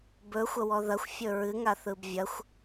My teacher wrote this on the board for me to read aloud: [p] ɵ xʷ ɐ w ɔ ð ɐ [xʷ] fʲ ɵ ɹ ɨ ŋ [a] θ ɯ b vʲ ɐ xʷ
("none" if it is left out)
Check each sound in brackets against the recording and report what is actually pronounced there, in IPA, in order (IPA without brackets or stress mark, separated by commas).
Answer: b, xʷ, a